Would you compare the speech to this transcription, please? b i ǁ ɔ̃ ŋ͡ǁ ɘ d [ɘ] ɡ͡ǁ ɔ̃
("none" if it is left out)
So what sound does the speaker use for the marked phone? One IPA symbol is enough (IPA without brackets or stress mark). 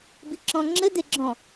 e